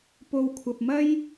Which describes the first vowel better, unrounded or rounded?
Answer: rounded